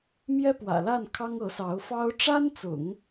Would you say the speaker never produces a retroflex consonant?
no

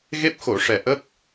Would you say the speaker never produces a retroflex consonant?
no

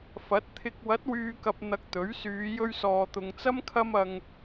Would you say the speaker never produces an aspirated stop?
no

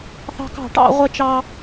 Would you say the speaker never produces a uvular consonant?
no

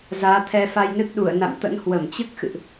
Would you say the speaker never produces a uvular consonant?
yes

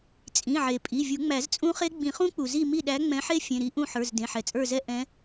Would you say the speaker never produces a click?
yes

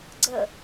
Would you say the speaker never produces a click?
no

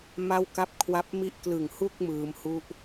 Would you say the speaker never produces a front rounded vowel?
yes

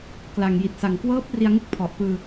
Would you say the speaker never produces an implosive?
yes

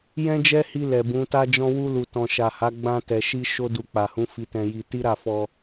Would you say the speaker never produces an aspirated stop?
yes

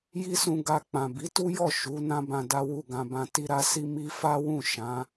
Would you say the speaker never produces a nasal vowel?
no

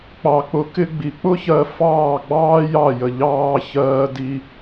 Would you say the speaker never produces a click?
yes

